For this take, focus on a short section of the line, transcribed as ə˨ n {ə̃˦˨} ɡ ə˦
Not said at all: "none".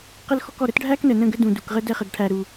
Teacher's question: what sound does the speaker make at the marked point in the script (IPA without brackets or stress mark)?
ə̃˦˨